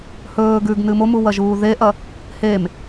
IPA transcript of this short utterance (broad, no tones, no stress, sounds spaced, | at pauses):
h ɵː ɡ ʉ ɡ n ɨ m o m u w ɐ ʒ uː ð e ʔ ɐ | h e m